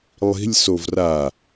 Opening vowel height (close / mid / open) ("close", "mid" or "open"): close